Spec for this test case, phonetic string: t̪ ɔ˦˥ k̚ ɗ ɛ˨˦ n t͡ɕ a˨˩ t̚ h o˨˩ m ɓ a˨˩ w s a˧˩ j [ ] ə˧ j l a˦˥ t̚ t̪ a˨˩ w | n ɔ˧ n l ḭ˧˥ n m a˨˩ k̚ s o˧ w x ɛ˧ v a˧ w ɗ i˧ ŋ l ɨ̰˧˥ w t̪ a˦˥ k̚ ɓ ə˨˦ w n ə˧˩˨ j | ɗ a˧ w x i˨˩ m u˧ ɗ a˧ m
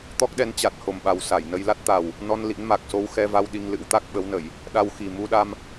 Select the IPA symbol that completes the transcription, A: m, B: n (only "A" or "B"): B